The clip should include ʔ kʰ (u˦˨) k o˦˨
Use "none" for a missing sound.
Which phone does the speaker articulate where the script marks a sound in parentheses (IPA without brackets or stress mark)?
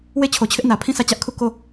u˦˨